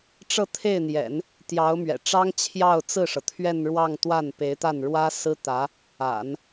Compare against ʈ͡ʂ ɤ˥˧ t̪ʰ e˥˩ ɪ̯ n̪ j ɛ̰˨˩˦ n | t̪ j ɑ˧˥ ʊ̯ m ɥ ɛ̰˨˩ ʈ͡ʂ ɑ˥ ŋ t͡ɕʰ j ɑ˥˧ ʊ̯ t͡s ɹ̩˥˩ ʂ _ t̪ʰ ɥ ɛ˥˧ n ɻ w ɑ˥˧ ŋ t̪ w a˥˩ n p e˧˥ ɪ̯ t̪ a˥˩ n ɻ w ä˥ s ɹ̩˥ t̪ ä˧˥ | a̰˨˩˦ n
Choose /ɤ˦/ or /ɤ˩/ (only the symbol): ɤ˩